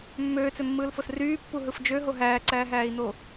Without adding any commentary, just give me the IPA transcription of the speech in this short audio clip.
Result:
mː øː t͡s ø mː ɯː l f o s r yː pː u ɦ ɯ f d͡ʒ ø ɦ o ɦ æː ǀ æː ɦ æː i̯ n̪ o

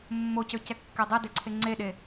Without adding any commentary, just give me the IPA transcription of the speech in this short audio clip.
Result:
mː o c ø c ɛ kː ɛ dˤ ɛ d e ǀʰ e ŋ͡ǀ e ɗ e

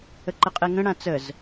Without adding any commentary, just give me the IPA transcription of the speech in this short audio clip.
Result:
ə ǃ ə qʼ e ŋ ə̃ ɽ ã t͡s ə z

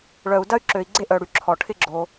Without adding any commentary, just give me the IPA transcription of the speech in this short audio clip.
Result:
ɭ œ˨ u̯ d ɐ˦ y̯ ǁ ø˨ i̯ ɡ͡ǀ e˦ ʔ œ˨ ɽ y˨ ǁʰ ɔ˨ ʈʰ ɪ˦ ɡ͡ǁ o˧

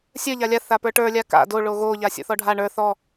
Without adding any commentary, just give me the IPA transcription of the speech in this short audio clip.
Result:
sʲ ə˞ ʎ a lʲ a θ a p ə˞ ʈ ə˞ lʲ a k a̰ d o ɭ o ɣ o ʎ a sʲ o̰ θ ɔ ɖʱ a ɳ ə˞ θ ɔ

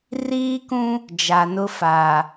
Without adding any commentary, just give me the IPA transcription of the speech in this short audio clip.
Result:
r iː˦ k ũ˦ | d͡ʒ a˨ n ʊ˦ f aː˨

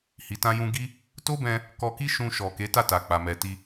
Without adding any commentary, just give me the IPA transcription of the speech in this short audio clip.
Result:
h i˨ t ã˧ j ũ˧ ɡ i˦ | t o˦ b ɛ̃˧ | k ɔ˧ k i˦ ʃ ũ˧ ʃ ɔ˨ k e˨˦ t a˦˨ t a˨ k͡p a˨ m ɛ˨ t i˧

